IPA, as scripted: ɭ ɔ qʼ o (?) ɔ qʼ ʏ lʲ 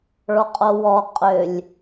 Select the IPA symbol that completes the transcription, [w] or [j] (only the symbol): w